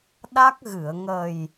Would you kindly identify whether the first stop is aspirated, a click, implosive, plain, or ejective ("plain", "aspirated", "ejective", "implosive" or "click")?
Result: implosive